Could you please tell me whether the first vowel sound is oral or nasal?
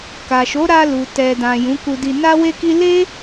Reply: oral